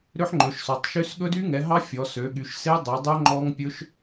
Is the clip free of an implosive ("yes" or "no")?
no